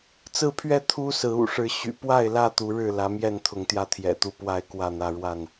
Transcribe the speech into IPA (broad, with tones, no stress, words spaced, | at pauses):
t͡sɹ̩˥˨pʰɥɛ˥˨ t̪ʰu˦ sɹ̩˨˦ṵ˨˩ʂɻ̩˨˦ ɕy̰˨˩pwa˥˨ɪ̯lä˥˨ t̪u˨˦ɻɻ̩˥˨ lä˨˦mjɛ˥˨nt̪ʰʊ˨˦ŋt̪jä˧ t̪ʰjɛ̰˨˩t̪u˥˨pwa˥˨ɪ̯ kwä˥˨n̪ä˦ ɻwa˥˨n